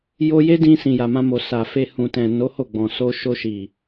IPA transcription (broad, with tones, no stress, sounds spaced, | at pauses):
j o˧ j e˦ d ĩ˧ s ĩ˨ j a˨ m ã˧ m o˨ s a˨ f e˧ h ũ˨ t ɛ̃˨ n o˨˦ h o˦˨ ɡ͡b ɔ̃˨ s o˧ ʃ o˧ ʃ i˨